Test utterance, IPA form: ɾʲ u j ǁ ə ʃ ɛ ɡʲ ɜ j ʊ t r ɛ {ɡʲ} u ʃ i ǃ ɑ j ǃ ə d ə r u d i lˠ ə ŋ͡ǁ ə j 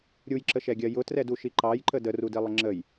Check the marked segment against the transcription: incorrect: d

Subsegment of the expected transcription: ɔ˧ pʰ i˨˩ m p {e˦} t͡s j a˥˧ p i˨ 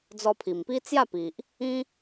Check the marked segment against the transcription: incorrect: i˦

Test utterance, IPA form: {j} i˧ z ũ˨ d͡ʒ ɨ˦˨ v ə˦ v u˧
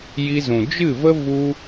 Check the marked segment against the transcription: correct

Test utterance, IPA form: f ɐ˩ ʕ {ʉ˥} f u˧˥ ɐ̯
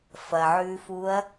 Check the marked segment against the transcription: incorrect: ʉ˧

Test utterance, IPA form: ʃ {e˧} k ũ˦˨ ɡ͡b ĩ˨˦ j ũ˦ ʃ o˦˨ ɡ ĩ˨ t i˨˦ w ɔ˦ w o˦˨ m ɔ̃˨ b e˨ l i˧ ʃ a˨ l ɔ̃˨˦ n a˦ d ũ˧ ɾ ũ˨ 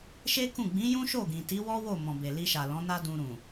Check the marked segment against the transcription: incorrect: e˦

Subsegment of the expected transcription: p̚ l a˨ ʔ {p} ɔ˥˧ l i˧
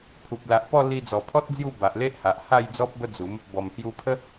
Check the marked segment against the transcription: correct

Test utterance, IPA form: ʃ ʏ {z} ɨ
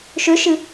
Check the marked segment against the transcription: incorrect: ʃ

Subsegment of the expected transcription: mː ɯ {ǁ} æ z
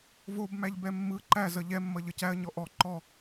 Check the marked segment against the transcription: incorrect: ǃ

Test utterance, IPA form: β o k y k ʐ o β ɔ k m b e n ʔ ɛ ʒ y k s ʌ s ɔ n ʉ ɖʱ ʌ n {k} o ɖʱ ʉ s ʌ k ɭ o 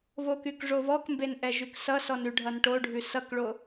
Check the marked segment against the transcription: incorrect: ʈ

